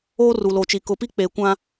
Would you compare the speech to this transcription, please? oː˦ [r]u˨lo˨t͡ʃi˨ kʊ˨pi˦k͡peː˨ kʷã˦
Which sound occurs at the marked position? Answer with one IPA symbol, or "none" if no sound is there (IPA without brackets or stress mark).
r